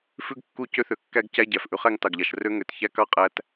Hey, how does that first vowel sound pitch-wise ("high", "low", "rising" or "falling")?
high